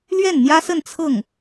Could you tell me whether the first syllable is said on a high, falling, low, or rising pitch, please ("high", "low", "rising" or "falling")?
falling